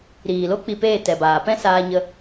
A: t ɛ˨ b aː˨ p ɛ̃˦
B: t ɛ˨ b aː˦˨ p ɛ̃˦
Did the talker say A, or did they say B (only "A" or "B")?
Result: A